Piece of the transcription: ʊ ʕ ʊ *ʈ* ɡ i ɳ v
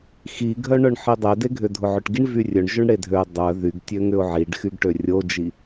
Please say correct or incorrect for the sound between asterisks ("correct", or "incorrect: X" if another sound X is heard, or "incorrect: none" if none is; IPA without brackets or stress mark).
correct